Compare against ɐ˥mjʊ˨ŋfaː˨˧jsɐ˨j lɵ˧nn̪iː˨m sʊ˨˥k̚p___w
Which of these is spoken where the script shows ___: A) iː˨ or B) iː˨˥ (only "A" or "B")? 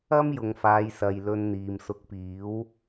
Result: B